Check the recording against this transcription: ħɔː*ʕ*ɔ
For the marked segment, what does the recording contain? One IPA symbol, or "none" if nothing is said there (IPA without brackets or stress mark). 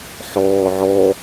ʕ